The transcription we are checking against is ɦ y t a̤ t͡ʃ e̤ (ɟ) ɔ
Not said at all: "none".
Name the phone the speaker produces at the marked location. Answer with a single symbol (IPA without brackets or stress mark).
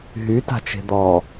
d̪